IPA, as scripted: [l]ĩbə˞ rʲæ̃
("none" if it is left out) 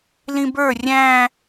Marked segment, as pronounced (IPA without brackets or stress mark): l